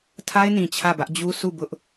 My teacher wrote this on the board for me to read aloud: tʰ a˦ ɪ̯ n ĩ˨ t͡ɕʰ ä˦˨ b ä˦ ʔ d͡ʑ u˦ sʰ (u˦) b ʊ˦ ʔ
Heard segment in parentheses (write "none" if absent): u˦˨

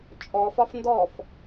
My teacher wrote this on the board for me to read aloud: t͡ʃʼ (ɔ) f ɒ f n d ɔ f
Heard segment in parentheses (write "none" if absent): ɔ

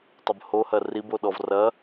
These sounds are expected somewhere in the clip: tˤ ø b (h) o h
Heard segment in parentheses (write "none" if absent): h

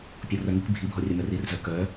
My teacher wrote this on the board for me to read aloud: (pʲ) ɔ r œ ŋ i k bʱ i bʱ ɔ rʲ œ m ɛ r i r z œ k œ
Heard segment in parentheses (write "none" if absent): pʲ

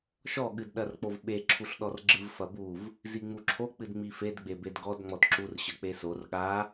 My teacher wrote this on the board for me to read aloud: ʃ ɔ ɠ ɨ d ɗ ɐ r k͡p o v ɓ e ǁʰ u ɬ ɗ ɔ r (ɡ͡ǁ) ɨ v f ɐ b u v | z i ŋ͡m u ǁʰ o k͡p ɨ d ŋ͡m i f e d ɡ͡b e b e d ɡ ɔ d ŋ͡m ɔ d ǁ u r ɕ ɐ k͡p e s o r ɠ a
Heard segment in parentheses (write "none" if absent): ɡ͡ǁ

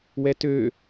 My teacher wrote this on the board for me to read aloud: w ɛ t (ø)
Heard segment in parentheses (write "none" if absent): ø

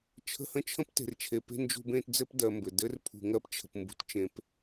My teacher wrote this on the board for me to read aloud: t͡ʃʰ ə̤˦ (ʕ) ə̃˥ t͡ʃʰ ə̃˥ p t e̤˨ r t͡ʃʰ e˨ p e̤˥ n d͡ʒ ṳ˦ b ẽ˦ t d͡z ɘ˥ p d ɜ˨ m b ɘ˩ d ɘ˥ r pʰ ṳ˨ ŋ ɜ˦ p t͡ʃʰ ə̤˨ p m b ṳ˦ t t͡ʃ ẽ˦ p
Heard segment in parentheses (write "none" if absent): h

